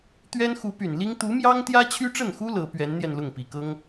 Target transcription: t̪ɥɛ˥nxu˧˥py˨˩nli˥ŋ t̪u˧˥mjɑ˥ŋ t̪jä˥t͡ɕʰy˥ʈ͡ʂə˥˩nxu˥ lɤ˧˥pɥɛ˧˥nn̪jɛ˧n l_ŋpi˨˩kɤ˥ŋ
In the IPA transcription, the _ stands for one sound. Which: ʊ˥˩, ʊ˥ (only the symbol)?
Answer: ʊ˥˩